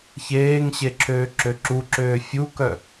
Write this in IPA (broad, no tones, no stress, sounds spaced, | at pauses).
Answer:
ç eː ŋ ɕ e ǁʰ øː ǁ ø ǁ u ǁ øː fʲ u k œ